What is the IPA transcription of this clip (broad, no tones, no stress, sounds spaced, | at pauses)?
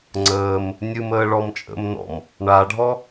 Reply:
ŋ͡ǀ əː m | nʲ ɨ m əː ɭ ɔ m t͡ʃʼ ə̰ m n ɔ̰ m | ɳ a ɖʱ ɔ